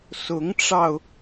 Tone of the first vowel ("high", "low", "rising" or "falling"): rising